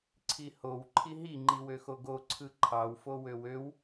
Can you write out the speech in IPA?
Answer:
ǀʰihow ǃʰiɦi ŋ͡ǃiwøxoɡo ǀʰɯǃʰɑw fowøwøw

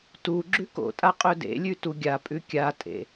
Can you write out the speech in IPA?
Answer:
tu ɡ͡ǁʉko̰tʼa qʼɵdḛlʲʉ tuɡʲapʼʉ kʲatʼḛ

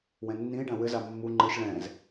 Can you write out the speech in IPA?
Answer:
wɛ̃nːĩe̯ɖã wɘza mːu ŋ͡ǃɨʃ ɭɛ̃z

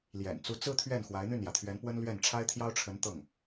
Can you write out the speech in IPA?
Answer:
ljɛ̰˨˩nt͡su˧˥ t͡sɹ̩˥t̪ʰɥɛ˥˩n xwa˧˥ɪ̯n̪y˥˩njä˩t̪ʰɥɛ˧˥n pwə˥nlɥɛ˥˩n ʈ͡ʂʰa˥ɪ̯t̪ʰjɑ˥ʊ̯ʈ͡ʂʰə˧˥nt̪ɤ˥˩ŋ

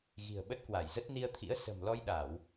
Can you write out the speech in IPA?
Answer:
ɣi̤˨˩ə̯ɓə˦˥t̚kwa˧˩jzə˦˥t̚ ni˧ə̯t̪ʰḭ˧˥ə̯ sə̤˨˩mlɔ˧jɗa˧˩˨w

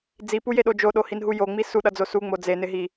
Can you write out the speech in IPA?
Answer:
d͡zipujeɗo d͡ʒoɗohinɦu joŋ͡mi suɗʌd͡zo suŋ͡mo d͡zenɪɦi

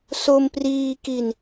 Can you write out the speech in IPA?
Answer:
so˧mpriː˧ki˧n

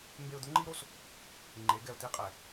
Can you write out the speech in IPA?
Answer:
mbe˧ʊ̯d̪ʊ˦ŋ͡ǃi˦ɾo˦s | ŋ͡ǃe˨˦ɡɛ˨ʊ̯t̪i˦ qʼɛ˨

